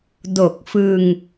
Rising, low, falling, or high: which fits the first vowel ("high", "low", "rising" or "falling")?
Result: low